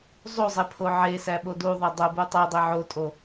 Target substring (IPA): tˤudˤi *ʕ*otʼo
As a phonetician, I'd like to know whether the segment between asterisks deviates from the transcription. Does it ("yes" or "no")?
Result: no